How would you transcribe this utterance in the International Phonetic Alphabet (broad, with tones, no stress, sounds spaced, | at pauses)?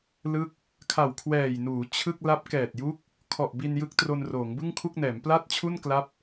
l ɯ˦˥ k̚ | kʰ a˨˩ w kʰ w ɛː˨˩ j n uː˩˦ t͡ɕʰ ɯ˥˩ k̚ l a˦˥ p̚ k ɛː˨˩ t̚ j u˦˥ k̚ | kʰ ɔ˨˩ ʔ b i˧ n j ɯ˦˥ k̚ t r o˧ n r oː˩˦ ŋ b ɯ˥˩ ŋ kʰ u˥˩ k̚ n ɛː˩˦ m p l a˥˩ t̚ t͡ɕʰ u˥˩ n k l a˦˥ p̚